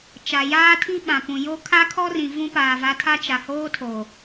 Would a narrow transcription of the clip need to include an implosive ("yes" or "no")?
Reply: yes